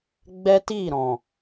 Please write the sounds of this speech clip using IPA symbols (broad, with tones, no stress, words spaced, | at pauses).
ɡ͡bɛ˦ti˦˨ɾɔ̃˨